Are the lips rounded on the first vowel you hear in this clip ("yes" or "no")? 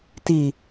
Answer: no